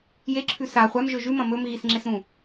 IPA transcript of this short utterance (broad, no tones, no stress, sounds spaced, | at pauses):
j e ǁʰ ʉ s a χʷ a m ʒ ɵ ʒ ʉ m ɐ̃ m ɵ m ɣ i s ŋ͡ǁ e s ɾ ũ